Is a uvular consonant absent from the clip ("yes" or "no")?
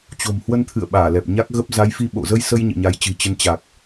yes